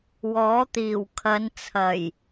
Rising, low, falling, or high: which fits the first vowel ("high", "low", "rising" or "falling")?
rising